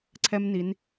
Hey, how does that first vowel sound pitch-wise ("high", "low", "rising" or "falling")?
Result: high